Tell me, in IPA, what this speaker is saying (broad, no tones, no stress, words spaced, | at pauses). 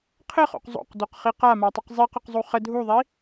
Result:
qʰɘχo̰q zˤo̰qdoqχi qamatˤɘq zˤiqəqzˤu χə dʱuðˤi